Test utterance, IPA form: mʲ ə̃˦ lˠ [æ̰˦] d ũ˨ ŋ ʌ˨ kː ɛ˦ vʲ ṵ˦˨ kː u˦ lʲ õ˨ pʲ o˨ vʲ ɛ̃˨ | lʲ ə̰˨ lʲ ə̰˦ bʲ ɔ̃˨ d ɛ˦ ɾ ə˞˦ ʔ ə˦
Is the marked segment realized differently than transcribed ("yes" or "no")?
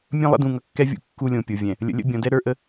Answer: yes